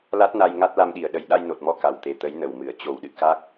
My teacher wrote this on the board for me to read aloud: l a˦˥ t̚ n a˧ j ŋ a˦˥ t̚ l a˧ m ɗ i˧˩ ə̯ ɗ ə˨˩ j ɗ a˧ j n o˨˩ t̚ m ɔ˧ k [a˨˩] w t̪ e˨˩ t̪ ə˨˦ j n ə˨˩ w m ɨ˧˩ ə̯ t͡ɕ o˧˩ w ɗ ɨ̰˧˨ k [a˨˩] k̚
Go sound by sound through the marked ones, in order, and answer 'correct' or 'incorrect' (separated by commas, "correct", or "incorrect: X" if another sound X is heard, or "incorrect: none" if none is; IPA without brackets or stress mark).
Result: correct, incorrect: a˦˥